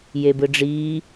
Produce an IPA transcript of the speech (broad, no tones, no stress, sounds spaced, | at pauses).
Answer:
j e b ɯ ɖ͡ʐ iː